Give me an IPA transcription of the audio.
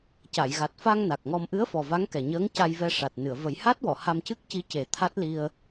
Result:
c a˨˩˨ j ɣ a˨˩ t̚ f a˧ ŋ n a˨˩ k̚ ŋ ɔ˧ m ʔ ɨ˧˥ ə̯ f ɔ˨˩ v a˧˥ ŋ k ɛ˨˩ ɲ əː˧˥ ŋ c a˧ j v ɛ˧ ʂ a˨˩ t̚ n ɨ˨˩˨ ə̯ v ə˨˩˦ j h a˦˥ t̚ w ɔ˨˩˨ h a˧ m c ɨ˦˥ k̚ c i˧˥ c e˨˩˦ t̪ʰ a˦˥ t̚ l i˧ ə̯

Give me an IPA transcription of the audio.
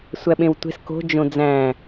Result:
sʷ æ ɓ ẽ w tʷ e̤ s k o̤ d͡ʒ õ d͡z æ̃

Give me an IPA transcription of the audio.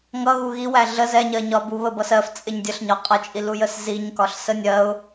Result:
ŋ ʌ ɣ u ɣ i w æ ɮ ə z ɛ ɲ ɜ ɲ ɒ b u β ə b ʌ s ɜ f t͡sʼ ɪ ɲ dʲ ə ɬ ɲ ɒ qʼ ʌ t͡ʃʼ i l u j ə s z i ɲ k ɒ ɬ s ə nʲ ɜ ʊ̯

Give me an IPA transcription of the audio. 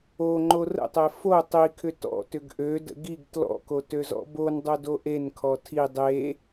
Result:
o ŋ͡ǃ o r ə̰ tˤ e f o tˤ i kʰ ʏ t ɔ̰ t ʏ ɡ ʔ ø d ə̰ ɡ i ɡ t l ɔ̰ k o t ø z ɔ̰ b o n dˤ o d o ʔ e n kʰ ɔ tʰ i dˤ e

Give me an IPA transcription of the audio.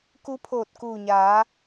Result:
k u˧˥ pʰ oː˧˩ t̚ k uː˧˩ ɲ aː˩˧

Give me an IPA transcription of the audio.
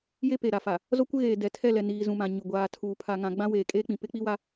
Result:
j e˦ p e˨ ɾ a˨ f a˨ | z o˦ kʷ ɪ˦ ɣ eː˨ d ɛ˨ tʰ ɛ˦˨ l ɛ˨ n iː˨ z ũ˨ m ã˨ ɲ ʊ˨ ɡʷ aː˨ tʰ uː˨ pʰ a˨ ŋ ã˨ ɡ͡b ã˦ w eː˨ kʼ eː˦ k͡p ĩ˨ p ɪ˦ k͡p i˦ w a˦

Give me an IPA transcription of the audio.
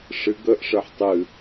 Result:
ʂ ɨ ɡ ə ʔ ʂ ə ħ tˤ ɨ

